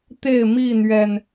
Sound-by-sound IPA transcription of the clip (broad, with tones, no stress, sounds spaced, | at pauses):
t̪ e˥˨ ɪ̯ m i˥˨ n̪ ɥ ɛ˨˩ n